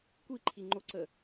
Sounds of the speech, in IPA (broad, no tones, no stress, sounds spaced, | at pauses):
kʷ i ǃʰ i ŋ͡ǃ o ǀ ə